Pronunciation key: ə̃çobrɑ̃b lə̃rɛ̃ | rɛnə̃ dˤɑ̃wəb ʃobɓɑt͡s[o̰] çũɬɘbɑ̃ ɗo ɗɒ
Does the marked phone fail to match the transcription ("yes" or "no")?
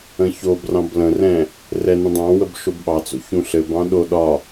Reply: no